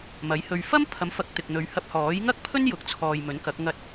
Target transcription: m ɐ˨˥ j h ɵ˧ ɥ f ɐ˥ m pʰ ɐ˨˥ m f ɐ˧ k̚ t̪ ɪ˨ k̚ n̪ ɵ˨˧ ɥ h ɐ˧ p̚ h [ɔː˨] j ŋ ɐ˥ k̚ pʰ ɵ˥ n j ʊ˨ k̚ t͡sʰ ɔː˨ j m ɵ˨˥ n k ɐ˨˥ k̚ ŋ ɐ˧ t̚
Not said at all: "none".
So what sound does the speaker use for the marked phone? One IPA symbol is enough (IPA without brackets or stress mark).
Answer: ɔː˨˥